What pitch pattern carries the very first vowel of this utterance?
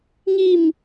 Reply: falling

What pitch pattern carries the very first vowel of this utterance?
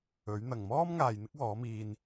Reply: rising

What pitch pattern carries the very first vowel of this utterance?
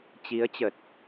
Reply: rising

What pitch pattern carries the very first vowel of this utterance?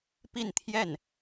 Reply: falling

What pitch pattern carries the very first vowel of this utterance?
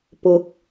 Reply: rising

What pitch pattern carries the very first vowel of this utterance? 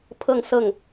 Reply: falling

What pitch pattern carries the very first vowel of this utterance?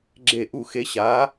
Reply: falling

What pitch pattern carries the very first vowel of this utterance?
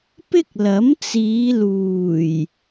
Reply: high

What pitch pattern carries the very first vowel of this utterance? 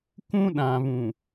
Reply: high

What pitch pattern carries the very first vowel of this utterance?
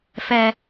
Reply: high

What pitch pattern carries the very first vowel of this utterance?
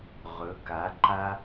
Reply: rising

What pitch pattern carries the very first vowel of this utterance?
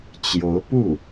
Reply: rising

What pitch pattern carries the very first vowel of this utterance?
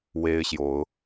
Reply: high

